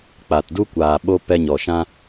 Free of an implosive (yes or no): no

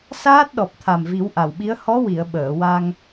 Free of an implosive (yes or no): no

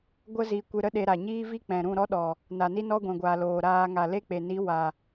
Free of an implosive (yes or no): no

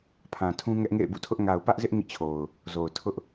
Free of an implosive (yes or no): yes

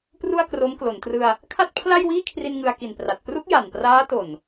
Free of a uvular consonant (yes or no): yes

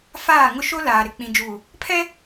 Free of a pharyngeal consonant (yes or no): yes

